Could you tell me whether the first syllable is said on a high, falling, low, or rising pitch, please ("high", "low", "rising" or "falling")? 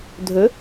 rising